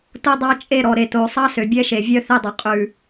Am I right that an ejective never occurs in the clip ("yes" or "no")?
no